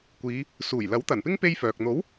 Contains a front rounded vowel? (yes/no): yes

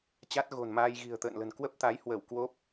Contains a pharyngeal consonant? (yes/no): no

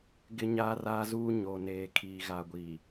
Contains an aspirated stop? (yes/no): yes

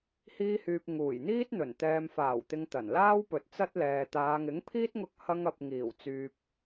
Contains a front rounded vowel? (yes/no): yes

